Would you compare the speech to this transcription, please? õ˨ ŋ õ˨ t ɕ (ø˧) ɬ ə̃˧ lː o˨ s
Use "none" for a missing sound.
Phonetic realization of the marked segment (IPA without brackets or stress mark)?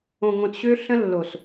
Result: ø˧